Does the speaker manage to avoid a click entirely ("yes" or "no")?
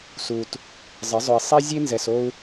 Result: yes